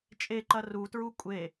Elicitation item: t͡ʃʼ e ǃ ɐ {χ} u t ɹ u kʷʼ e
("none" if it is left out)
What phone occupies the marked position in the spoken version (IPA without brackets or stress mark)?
r